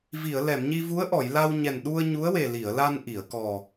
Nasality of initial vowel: oral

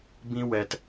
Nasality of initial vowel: nasal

